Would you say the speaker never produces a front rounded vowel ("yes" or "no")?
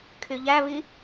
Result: no